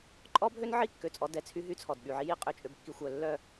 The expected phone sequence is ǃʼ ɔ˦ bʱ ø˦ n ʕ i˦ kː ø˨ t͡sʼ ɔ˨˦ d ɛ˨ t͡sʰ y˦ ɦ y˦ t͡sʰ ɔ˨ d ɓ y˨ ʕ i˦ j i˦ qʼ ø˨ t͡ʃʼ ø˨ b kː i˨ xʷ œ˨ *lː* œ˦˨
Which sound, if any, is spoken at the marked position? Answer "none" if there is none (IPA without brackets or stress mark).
lː